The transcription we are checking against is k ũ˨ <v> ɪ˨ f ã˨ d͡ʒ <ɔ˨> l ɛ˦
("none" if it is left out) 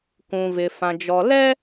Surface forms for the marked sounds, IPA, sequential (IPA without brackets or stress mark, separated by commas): v, ɔ˨